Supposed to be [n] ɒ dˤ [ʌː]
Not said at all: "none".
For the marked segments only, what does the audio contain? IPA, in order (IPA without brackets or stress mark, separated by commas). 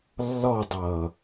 lː, ʌː